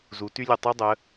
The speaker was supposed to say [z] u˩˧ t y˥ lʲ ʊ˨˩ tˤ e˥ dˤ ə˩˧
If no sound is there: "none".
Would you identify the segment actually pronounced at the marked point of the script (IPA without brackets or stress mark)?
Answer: z